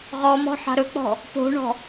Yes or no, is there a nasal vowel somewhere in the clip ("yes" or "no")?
no